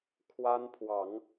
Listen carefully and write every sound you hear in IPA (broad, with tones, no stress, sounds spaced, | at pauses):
kʰ w a˦ n pʰ w ɑ˨˦ ŋ